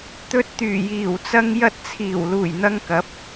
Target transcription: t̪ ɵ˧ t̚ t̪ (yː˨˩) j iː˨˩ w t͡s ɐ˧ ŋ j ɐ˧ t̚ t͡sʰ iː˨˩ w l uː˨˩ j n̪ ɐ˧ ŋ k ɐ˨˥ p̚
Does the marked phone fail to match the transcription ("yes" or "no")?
no